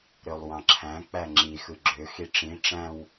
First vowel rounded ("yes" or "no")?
yes